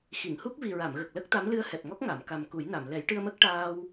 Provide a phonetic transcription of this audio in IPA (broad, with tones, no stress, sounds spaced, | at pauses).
x i˨˩˨ ŋ h u˦˥ k̚ v i˨˩ ɹ a˨˩˨ m ɣ ə˨˩ k̚ l ə˦˥ k̚ t̪ a˧˥ m l ɨ˧ ə̯ h ɛ˨˩ p̚ ŋ ɔ˦˥ k̚ ŋ a˨˩˨ m k a˨˩ m k u˨˩˦ j n a˨˩˨ m l ɛ˨˩˦ j ʈ ɨ˧ ə̯ m ə˦˥ k̚ ʈ aː˧ w